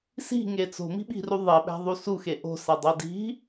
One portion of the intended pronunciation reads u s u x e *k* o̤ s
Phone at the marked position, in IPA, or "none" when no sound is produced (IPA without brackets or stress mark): ʔ